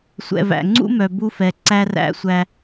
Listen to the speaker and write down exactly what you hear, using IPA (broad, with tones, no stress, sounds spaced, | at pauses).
sʷ ɛ̰˨ v æ̰˨ ŋ͡ǀ ṵ˦ m œ˨ b u˦ f ɛ˨ ǀ æ˦ r æ̰˦ sʷ æ˦